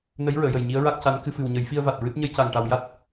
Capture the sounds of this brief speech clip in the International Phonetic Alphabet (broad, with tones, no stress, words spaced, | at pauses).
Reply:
nə˧˥jɹəː˨˩˨jə˨˩j ɲi˧˥ə̯ɹa˦˥k̚ca˧˥n kɨ˧fɨ˨˩wɲə˨˩˦j fi˧ə̯va˨˩t̚ ɹɨ˦˥t̚ ɲə˧jca˨˩ŋʈa˨˩w ja˦˥t̚